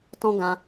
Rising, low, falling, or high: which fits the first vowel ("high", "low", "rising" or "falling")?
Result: high